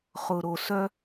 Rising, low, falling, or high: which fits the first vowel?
low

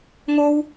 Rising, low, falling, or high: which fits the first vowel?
high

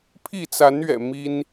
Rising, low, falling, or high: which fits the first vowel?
falling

